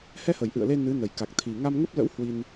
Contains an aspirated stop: yes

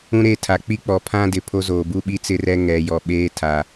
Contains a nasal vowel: yes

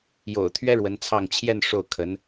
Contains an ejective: no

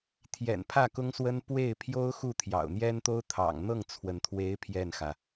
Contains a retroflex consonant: no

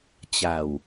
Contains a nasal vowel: no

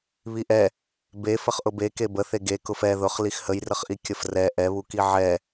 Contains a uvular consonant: yes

